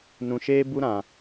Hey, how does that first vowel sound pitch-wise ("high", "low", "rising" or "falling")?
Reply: low